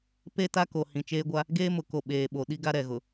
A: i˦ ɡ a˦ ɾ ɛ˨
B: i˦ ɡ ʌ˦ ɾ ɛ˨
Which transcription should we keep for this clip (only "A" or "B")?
A